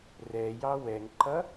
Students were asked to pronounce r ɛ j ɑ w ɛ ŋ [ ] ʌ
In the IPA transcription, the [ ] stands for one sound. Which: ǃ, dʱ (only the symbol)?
ǃ